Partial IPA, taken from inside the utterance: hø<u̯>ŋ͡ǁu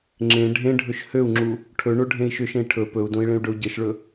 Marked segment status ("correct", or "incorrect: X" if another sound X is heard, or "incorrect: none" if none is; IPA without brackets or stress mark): correct